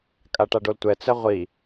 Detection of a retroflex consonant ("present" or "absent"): present